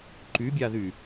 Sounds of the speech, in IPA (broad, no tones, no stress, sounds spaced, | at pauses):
ǃ y bʲ a ð y